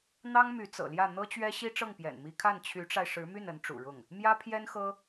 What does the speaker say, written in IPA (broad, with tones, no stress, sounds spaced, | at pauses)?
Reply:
n̪ ɑ˥ ŋ m y˧˥ t͡s ɤ̰˨˩ l j ä˥˩ n̪ ɤ˥ t͡ɕ ɥ ɛ˥ ɕ i˥ ʈ͡ʂ ɤ˥˩ ŋ p j ɛ̰˨˩ n m i˧˥ kʰ a˥˩ n t͡ɕʰ y˧˥ ʈ͡ʂ a˧ ɪ̯ ʂ ɻ̩˧˥ m y˥˩ n ə˧˥ n ʈ͡ʂ ṵ˨˩ ɻ ʊ˥˩ ŋ | m j ä˥ pʰ j ɛ˥ n x ɤ˥